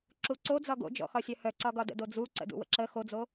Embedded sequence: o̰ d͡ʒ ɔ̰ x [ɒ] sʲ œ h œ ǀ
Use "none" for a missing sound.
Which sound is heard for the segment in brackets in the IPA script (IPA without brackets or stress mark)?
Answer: ɒ